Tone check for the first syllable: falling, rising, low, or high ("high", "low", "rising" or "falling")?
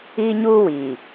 high